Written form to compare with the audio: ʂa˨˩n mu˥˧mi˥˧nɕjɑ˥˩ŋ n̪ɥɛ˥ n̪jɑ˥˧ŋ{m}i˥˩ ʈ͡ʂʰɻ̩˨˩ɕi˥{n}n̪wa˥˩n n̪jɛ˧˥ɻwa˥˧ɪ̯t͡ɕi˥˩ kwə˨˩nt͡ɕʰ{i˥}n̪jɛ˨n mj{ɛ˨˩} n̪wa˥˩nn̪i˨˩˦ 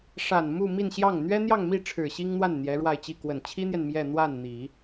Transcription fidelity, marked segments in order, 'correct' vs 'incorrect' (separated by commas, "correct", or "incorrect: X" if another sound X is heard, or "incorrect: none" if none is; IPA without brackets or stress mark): correct, incorrect: ŋ, correct, incorrect: ɛ˥˧